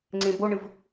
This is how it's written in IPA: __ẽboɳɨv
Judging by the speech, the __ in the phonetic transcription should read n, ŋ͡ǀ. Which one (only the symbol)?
ŋ͡ǀ